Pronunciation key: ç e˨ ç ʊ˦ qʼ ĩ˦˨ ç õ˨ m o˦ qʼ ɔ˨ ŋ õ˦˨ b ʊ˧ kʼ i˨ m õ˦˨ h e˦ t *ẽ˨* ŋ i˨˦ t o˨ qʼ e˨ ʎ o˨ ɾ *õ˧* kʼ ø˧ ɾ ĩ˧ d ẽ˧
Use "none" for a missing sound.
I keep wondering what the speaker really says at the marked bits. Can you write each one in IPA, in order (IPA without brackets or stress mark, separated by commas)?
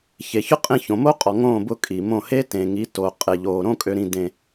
ẽ˨, õ˦